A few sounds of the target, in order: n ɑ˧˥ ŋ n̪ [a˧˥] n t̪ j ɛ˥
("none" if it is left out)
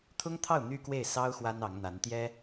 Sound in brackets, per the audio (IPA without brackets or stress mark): a˧˥